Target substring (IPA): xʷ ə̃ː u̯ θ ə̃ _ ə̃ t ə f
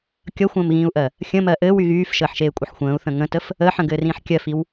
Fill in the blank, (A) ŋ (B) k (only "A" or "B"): A